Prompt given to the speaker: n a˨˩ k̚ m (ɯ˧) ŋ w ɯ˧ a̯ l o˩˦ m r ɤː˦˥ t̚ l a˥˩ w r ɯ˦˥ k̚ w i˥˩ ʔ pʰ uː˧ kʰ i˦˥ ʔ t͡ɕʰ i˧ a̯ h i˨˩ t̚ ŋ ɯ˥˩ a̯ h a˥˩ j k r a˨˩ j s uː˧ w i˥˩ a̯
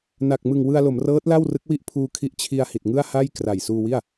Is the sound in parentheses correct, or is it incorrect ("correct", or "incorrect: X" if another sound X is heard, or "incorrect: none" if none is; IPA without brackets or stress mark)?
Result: incorrect: ɯ˨˩